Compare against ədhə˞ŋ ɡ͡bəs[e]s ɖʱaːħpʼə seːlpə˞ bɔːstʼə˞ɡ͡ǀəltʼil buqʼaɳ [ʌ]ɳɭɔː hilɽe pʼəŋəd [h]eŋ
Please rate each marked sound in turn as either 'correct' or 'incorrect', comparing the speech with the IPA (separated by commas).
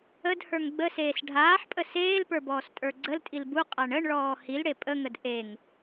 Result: incorrect, incorrect, incorrect